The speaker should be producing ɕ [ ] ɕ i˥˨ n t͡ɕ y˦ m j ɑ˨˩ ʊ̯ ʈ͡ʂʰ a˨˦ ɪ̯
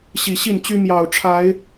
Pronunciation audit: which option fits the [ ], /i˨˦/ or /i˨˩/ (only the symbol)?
i˨˩